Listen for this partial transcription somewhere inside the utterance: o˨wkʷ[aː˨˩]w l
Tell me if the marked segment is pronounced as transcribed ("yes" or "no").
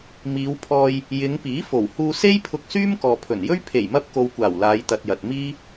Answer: yes